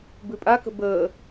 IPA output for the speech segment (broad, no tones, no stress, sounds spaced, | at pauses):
b ʉ pʼ a k ə̤ b əː